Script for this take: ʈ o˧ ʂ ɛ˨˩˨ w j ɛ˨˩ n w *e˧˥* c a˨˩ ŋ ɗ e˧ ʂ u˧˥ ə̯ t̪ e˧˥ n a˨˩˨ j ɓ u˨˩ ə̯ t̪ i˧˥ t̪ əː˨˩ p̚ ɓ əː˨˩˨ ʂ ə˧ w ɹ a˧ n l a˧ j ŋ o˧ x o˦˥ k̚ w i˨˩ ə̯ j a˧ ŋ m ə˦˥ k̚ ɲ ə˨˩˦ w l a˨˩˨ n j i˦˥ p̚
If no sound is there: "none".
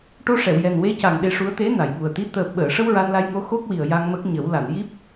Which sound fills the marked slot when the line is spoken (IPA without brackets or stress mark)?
e˧˥